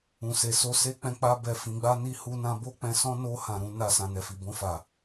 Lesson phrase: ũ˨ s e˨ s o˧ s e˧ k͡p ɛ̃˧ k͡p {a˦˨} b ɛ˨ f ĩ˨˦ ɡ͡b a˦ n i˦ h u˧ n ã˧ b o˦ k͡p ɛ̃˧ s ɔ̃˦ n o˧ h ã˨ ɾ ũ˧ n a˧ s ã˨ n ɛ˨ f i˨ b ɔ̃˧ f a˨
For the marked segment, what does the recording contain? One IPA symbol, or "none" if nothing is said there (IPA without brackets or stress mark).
a˧